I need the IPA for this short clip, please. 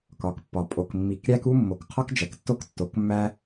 k ɒ˨ k pː ɒ˨ pʼ o˨ k mː i˨ k ɾʲ æ˦ k u˦ mː o˨ k qʰ ɒ˦ k d͡ʒ æ˨ k tː o˦ k tː o˨ k mː æ˦

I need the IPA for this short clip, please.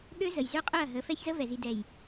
ɠ ø˦ z ə˨ j z ø˦ qʼ ø˦˨ ɐ̯ ɦ ə˨˦ f ɛ˦ ç z ə˦ v ɛ˨ z i˨ d ɛ˨ j

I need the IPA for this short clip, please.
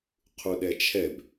qʰ u ɗ ɛ t͡ʃʰ ɛ b

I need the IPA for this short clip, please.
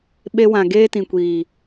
ɓ e˧ w ã˨ ɡ eː˦ t ĩ˨ kʷ iː˨

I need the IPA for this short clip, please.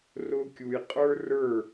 r ʊ˥ kʲ u˧ j qʼ ə˞˥ r ə˞˥˧

